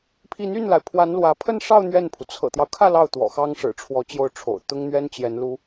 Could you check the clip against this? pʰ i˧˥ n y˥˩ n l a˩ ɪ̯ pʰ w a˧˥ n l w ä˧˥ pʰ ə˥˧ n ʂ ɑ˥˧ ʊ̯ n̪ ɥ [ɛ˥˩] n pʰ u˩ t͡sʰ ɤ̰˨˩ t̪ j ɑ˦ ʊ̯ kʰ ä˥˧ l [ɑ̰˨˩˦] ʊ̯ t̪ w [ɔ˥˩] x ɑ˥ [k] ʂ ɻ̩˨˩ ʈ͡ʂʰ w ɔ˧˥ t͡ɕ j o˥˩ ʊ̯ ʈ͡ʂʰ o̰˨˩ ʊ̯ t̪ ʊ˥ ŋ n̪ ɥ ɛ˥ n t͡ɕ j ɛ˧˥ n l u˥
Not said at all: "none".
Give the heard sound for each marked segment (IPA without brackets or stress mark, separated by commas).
ɛ˥˩, ɑ˥˩, ɔ̰˨˩, ŋ